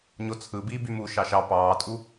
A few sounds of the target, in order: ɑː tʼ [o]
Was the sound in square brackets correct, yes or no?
no